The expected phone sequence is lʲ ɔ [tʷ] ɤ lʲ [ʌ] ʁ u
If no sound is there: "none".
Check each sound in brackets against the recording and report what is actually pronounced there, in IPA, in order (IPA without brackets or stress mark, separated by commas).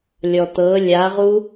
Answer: t̪, a